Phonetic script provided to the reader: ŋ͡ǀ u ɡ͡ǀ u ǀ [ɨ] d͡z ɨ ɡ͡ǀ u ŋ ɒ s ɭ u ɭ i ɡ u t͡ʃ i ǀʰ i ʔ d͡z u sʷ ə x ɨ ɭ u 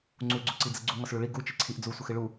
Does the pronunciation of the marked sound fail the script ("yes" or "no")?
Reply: yes